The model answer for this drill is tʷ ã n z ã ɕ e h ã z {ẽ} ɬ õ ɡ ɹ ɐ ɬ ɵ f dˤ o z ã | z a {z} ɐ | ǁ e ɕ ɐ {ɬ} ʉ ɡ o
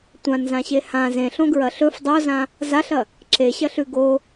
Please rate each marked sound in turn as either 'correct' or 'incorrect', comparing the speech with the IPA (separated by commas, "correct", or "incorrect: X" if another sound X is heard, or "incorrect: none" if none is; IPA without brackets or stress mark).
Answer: correct, incorrect: ɬ, correct